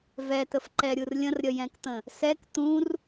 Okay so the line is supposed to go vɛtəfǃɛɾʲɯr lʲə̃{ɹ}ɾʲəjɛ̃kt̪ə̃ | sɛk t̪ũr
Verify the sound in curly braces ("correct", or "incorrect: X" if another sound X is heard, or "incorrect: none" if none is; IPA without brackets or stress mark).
incorrect: r